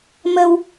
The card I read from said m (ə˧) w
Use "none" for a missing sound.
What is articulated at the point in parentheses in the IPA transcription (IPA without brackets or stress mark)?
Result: ə˧